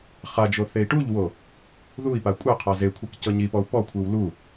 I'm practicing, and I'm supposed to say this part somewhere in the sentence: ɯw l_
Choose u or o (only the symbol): u